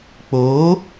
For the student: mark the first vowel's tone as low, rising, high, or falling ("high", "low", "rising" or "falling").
rising